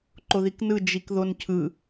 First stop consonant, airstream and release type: click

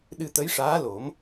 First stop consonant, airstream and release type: implosive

